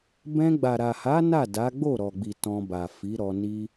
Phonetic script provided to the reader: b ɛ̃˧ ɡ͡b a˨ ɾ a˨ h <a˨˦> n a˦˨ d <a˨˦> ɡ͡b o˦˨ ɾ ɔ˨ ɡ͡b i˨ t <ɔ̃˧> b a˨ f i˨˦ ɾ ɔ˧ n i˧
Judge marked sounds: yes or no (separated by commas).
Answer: yes, yes, yes